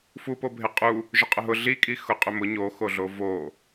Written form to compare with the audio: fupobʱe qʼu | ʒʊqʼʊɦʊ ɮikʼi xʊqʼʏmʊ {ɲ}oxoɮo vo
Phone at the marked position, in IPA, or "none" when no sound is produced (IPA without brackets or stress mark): ɲ